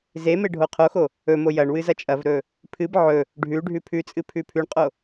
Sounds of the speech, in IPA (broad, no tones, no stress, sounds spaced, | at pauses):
z e m e ɖʱ o qʰ o x o | ɵ m o j ɐ ɳ w ɨ z ɐ t͡ʃʼ ɐ v ɾ ɵ | pʰ ɨ b ʕ ɵ | ɖʱ ʉ ɖʱ ʉ pʰ ʉ t͡sʼ ɨ pʰ ʉ pʰ ʉ ɳ qʼ o